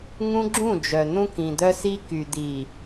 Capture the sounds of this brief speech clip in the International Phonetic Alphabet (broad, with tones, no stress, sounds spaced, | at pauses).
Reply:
ŋ ũ˦ ɡ͡ǁ ũ˦˨ d͡ʒ œ˨ n̪ ũ˦ k ĩ˨ d̪ œ˦ s i˦ k y˨ d̪ i˨